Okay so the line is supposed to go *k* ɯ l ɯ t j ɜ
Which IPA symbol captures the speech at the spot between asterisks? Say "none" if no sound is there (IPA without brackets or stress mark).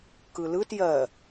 k